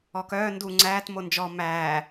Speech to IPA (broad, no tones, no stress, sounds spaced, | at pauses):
ɔ k œː n d u ŋ͡ǀ æː t m o n d͡ʒ ɔ m æː